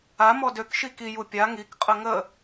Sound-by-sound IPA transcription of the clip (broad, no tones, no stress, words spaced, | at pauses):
a mɔdøk ʃiki jupʲa ŋik qʼəŋə